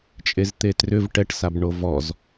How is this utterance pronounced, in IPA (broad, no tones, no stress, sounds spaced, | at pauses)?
t͡ʃʼ e z t̪ e t r ʏ v ʈ ɛ ʈ s a b ɳ o v ɔ z